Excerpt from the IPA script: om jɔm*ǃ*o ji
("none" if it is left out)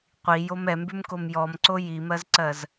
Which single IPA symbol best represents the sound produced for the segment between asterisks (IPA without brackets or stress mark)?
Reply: ǀ